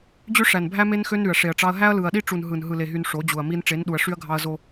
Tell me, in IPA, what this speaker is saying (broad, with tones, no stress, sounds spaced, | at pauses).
d͡ʑ ø˦ ʂ æ˨ n bʱ æ˦ m e˦ n x ø˦ n ɾ y˨ ɐ̯ ʂ e˨ ɐ̯ ʈ͡ʂ ɑ˦ ɐ̯ ɦ æ˦ ɐ̯ l ɯ˨ ɐ̯ ɗ i˦ ʈ͡ʂ u˨ n ɦ ɯ˨ n ɦ ɯ˨ l e˨ ɦ y˨ n ʂ o˨˦ d͡ʑ u˨ ɐ̯ m i˦ n ʈ͡ʂ e˨˦ n ɗ u˨ ɐ̯ ʂ y˦ ɐ̯ ɡʱ ɑ˦ ɐ̯ z o˦